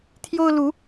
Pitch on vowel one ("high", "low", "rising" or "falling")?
high